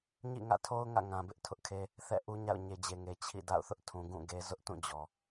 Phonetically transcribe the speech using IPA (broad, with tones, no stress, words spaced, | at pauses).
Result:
ɲḭ˦˨ŋä̰˦˨tʰo˦ʊ̯ ŋä̰˦˨ŋã˨bɪ˦ʔ tʰʊ˦ʔkʰe˦ | θɛ̰˦˨ʔu˦ɲa̰˦˨ʊ̯ ɲe˨d͡ʑe˨ŋe˨ t͡ɕʰḭ˦˨da̰˦˨ʊ̯ θʊ˦ʔtʰũ˨ɡũ˦˨ ɡe˦ zʊ˦ʔtũ˦˨d͡ʑɔ˨